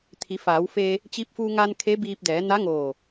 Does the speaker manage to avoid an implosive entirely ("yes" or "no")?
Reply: yes